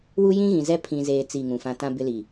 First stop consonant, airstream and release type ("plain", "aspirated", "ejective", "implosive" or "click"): aspirated